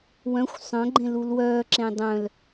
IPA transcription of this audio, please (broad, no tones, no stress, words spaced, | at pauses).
wœ̃xʷ sˤœ̃ɡ͡ǃẽlul wœːǁẽ dˤœ̃l